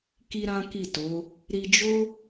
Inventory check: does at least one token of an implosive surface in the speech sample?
no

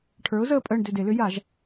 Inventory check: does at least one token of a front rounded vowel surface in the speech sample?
yes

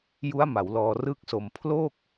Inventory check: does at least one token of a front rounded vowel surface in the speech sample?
no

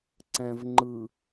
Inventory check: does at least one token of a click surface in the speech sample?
yes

